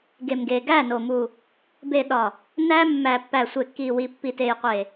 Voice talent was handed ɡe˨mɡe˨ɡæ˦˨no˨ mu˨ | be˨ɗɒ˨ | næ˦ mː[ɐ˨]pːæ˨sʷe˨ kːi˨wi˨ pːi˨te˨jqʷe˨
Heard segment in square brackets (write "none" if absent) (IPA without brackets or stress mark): æ˨